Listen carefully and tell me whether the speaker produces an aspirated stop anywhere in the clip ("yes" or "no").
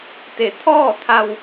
yes